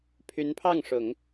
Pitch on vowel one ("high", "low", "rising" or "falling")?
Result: rising